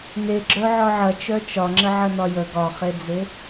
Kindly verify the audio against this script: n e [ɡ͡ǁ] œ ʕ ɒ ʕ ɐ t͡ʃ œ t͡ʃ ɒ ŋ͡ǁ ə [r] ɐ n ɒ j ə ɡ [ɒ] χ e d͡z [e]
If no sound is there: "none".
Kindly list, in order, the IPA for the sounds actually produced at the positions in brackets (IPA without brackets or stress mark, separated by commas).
ɡ͡ǁ, ʕ, ɒ, e